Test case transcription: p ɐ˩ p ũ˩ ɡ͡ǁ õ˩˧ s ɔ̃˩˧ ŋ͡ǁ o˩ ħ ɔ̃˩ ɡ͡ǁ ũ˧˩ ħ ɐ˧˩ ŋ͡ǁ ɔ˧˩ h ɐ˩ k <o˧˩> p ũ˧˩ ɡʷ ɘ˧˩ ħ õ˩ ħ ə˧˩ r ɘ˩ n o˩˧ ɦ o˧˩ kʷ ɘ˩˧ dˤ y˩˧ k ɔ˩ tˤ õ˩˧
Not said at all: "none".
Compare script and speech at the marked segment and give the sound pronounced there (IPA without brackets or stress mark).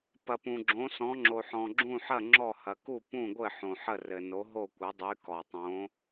u˧˩